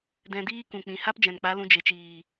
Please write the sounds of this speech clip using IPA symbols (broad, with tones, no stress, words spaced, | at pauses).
dɛ̃˧diː˦kũ˨ k͡pĩ˨ha˦pd͡ʒɛ̃˨nk͡pa˨˦ lũ˧ d͡ʒe˨t͡ʃiː˨